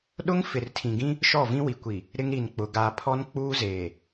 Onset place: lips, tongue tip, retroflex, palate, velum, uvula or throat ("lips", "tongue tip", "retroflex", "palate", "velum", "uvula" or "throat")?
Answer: tongue tip